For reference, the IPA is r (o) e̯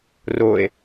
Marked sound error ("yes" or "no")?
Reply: no